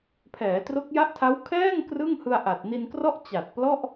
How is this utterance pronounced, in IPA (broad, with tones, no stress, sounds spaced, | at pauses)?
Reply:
pʰ ɛː˩˦ t r o˦˥ k̚ j a˦˥ ʔ tʰ a˦˥ w kʰ ɛː˥˩ ŋ k r ɯ˥˩ ŋ h ɯ˧ a̯ ʔ a˨˩ t̚ n i˧ n k r ɔ˥˩ ʔ t͡ɕ a˨˩ t̚ p l ɔ˥˩ ʔ